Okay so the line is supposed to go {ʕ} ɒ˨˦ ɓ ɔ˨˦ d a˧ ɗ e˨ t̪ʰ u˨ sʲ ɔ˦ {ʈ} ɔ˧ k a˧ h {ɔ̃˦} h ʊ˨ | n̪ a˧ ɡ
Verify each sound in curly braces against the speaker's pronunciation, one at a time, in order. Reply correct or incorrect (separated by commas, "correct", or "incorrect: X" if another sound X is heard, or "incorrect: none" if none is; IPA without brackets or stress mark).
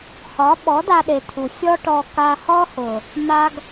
incorrect: h, correct, incorrect: ɔ˦